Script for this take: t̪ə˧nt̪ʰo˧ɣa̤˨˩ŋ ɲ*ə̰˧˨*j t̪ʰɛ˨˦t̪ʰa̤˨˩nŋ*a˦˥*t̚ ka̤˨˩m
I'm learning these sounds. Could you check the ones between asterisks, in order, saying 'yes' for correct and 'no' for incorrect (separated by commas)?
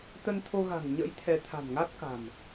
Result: no, yes